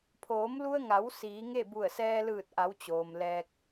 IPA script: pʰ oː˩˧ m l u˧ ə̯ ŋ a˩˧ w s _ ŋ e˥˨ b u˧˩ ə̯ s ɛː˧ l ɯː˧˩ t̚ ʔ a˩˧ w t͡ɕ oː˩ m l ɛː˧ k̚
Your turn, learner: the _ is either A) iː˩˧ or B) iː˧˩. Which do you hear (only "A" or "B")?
A